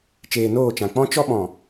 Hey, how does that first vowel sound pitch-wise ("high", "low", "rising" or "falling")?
low